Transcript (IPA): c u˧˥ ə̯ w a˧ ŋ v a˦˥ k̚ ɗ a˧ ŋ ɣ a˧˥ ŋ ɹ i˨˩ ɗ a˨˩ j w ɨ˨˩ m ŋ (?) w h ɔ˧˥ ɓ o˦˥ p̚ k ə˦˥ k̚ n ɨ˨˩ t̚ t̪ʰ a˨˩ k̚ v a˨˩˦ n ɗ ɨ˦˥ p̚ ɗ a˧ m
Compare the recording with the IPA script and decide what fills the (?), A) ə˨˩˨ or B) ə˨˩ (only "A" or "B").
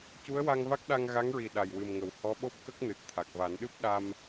A